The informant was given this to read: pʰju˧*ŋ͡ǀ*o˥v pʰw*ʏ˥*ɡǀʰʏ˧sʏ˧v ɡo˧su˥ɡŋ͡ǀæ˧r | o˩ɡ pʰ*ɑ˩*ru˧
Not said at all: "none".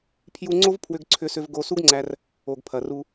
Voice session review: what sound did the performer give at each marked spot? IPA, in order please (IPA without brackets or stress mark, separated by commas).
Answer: ŋ͡ǀ, ʏ˧, ɐ˩